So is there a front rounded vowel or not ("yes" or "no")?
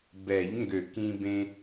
yes